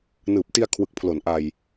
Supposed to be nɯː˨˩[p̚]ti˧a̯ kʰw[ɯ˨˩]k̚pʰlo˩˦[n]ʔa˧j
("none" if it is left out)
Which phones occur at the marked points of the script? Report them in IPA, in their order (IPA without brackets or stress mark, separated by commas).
p̚, ɯ˨˩, n